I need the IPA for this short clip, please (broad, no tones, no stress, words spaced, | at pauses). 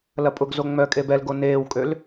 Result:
lɐpʼʊɡzo ŋ͡mœkʼe bɛlɡo neːwkʼøl